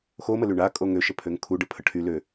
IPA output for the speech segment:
x o m ə l y ɳ a kʼ o ŋ ø ʃ ə pʰ ø ŋ kʰ u ɖ ə pʰ ə ʈʰ y l ø

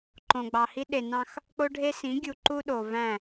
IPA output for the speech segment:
ǃ õ˨ ɡ͡b ɑ˨ h i˦ ɗ e˨ n ɑ̃˦ x | k͡p o˦ ɖʱ e˦ s ĩ˨˦ ɡʲ u˨ ǃ u˦ ɗ o˨ v æ̃˦˨

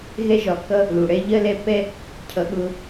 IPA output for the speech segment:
ɣ ɛ˦ ʒ ɒ˧ kː ʌ˦ | l u˨ ɽ ɛ˦ ʎ ɜ˦ l ɛ˦˨ pː ɛ˦ | cʰ ʌ˨˦ ɠ ʊ˧

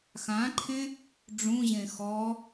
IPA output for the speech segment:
x ã ǃʰ ẽ | ɖ͡ʐ ũ ʑ ẽ x ɔ

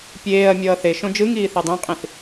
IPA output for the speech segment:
pʲ eː ɐ̯ mʲ ʌː θ e ʃ õ d͡ʒ ɯ ŋ iː θ ɛ dˤ ĩ qʼ ĩ θ

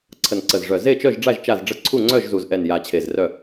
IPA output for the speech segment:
ǀʰ ə˨˩ n ǀ ə˨˩ z ʐ œ˨˩ z e˦˨ t͡ʃ œ˦˨ ʒ ɖ͡ʐ a˦˨ ʒ t͡ʃ a˦˨ z ɖ͡ʐ ə˦˨ ǀʰ u˦˨ ŋ͡ǀ œ˦˨ ʒ z u˨˩ z ʔ ɛ˨˩ n j a˨˩ t͡ɕʰ e˨˩ z r œ˦˨

